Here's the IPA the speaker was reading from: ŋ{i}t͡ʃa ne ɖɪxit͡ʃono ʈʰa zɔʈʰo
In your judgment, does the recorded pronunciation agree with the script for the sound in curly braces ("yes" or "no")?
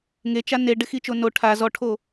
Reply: no